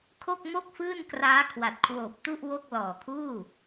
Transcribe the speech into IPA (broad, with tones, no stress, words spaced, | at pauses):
kʰo˥˩k̚mo˥˩k̚fɯː˥˩nkraː˦˥ kʰwa˨˩t̚kʰwoː˨˩p̚tu˥˩ʔ wo˥˩k̚ lɔː˨˩kʰuː˥˩